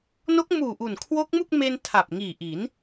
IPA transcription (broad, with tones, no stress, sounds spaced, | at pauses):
n o˦˥ k̚ m uː˨˩ ʔ u˨˩ n kʰ w o˦˥ k̚ m u˥˩ k̚ m e˧ n tʰ a˨˩ p̚ ŋ iː˨˩ ʔ i˩˦ n